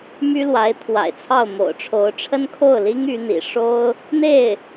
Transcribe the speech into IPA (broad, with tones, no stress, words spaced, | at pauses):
my˥lwa˧˥ɪ̯ t̪ʰwa̰˨˩ɪ̯t͡sʰɑ˥˩ʊ̯ mo̰˨˩ʊ̯ʈ͡ʂʰo˧˥ʊ̯ʈ͡ʂʰə˥n kʰo˥˩ʊ̯li˥ŋ y˧˥n̪ḭ˨˩ ʂo˥ʊ̯ | n̪e˥˩ɪ̯